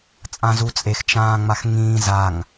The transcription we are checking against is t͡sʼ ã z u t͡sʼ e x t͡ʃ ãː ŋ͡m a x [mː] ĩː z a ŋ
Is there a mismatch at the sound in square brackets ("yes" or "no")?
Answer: yes